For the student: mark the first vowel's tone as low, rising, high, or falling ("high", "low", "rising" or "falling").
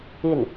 falling